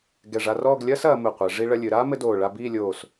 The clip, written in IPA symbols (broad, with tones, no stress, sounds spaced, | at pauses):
ɡ ɛ˧˩ ʐ a˧ r ɔː˥˧ ɡ lʲ ɐː˥ s ɐː˩˧ m ɘ˧˩ qʷ ɛ˩˧ ʐ i˧ ɭ ɐ˧ lʲ ɨ˩˧ ɾ aː˥ m ɘ˥ d oː˧˩ ɭ a˥˧ b iː˥˧ lʲ oː˧˩ s